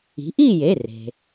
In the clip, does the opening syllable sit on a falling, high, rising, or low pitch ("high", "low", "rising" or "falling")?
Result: rising